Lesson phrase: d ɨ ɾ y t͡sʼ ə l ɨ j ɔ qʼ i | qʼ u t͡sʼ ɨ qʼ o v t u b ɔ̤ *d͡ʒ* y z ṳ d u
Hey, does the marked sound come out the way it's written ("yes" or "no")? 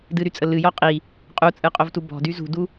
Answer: no